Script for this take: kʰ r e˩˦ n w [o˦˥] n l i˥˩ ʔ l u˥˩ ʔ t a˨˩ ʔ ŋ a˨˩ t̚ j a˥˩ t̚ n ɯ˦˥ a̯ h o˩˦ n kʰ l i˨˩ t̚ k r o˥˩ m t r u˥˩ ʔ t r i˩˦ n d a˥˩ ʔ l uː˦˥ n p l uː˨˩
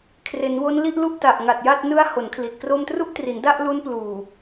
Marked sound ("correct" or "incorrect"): correct